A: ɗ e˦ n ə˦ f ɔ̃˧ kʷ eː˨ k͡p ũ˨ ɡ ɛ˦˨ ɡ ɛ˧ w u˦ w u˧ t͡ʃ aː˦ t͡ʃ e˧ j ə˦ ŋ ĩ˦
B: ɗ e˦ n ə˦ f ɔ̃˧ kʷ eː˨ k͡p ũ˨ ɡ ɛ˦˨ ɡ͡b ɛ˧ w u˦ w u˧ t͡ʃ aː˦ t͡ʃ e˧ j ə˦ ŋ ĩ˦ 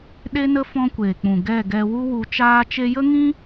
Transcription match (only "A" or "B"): A